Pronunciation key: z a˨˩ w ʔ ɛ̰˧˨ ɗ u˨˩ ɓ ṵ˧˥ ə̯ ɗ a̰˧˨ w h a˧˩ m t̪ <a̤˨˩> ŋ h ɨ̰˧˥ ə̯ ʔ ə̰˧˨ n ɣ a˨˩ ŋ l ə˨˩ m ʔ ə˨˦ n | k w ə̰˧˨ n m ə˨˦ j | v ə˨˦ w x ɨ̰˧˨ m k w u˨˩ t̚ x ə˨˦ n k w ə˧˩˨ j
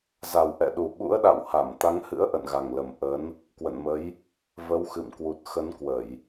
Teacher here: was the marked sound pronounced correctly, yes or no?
no